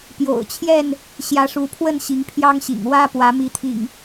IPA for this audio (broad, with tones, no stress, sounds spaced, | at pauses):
p j o̰˨˩ ʊ̯ t͡ɕʰ j ɛ˥˨ n | ɕ j ä˨˦ ʂ u˨˦ pʰ w ə˥˨ n ɕ i˨˦ ŋ pʰ j ɑ˦ ŋ ɕ ḭ˨˩ ŋ w ä˦ p w ä˨˦ m i˨˦ t̪ʰ ḭ˨˩ ŋ